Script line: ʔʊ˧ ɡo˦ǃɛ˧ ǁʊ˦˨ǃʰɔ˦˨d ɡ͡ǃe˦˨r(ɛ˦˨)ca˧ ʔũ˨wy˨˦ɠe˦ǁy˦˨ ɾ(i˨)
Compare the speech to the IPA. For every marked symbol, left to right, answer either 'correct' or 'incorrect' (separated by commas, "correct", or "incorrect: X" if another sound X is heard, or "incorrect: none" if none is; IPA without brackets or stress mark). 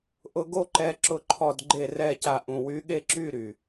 correct, incorrect: y˨